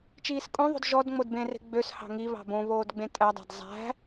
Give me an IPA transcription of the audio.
t͡ʃiːskʼõðˤo̤d ʒɔd ŋ͡modbẽre̤ ɡ͡bøs hɑ̤ŋi βɑ̤bõ βoːdɡ͡bẽtʼædˤæ̤d zˤæ̤

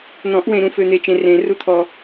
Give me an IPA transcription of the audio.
n̪ɔ̃˨˩˦ʔwẽ˨ɾũ˨ fø˨n̪e˨t͡ʃẽ˨ rẽ˨˩˦ ru˨t̪ʰɔ˨

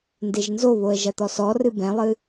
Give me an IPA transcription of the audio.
ndeʒnzoβoə̯ ʒɐt̪ɔsɔrɨ bɛ̃lˠɨ

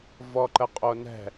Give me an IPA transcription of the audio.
vɔǃəqʼonɛ̤

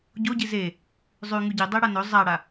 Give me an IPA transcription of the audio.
ɟoɟi ze | zˤʉ ŋʉɟi dˤeɽanɵ zˤaɽa

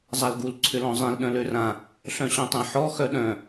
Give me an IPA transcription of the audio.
zˤalɡul ǀʰʏlɔ̃zˤẽl ɗœ̃lørã | ɬœ̃ɕœ̃tˤẽħɔ xœɗœ̃

